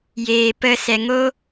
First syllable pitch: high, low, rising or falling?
low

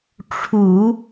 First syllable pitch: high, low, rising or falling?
low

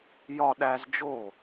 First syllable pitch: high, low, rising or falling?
high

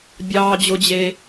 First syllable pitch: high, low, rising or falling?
high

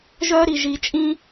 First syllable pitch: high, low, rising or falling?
high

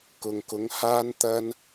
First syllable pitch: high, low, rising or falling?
low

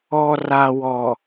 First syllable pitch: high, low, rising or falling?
low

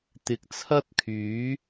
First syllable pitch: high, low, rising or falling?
rising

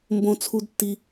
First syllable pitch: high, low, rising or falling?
low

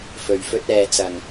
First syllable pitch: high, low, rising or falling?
low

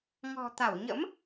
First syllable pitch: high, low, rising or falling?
low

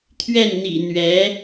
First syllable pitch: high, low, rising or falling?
falling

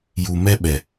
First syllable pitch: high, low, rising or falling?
low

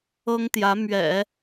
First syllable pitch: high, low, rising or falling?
high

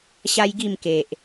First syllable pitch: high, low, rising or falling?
high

